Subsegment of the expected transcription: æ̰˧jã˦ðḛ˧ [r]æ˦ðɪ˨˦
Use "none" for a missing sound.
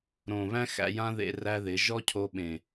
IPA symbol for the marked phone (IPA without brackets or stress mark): r